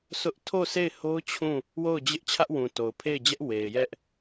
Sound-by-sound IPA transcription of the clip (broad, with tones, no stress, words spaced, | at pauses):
sʊ˦ʔ tʰo˦˨se˦˨ɪ̯ho˦ʊ̯ t͡ɕʰũ˦˨ | wo˦˨ʊ̯d͡ʑɪ˦ʔ t͡ɕʰä˦ʔwũ˨to˨ʊ̯ pʰe˦˨ɪ̯d͡ʑɛ˦ʔ we˨ɪ̯jɛ˦ʔ